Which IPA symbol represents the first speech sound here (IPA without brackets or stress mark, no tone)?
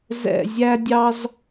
z